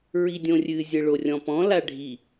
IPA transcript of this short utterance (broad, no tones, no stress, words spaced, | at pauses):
ɹidʲõrʲɨ zʲɘɭorʲɔ̃pɔ̃ laɖʱi